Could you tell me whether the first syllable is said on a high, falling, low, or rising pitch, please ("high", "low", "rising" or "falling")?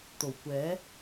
low